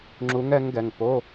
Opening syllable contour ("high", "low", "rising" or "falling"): rising